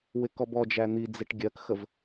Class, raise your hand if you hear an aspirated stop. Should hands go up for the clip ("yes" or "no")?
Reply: no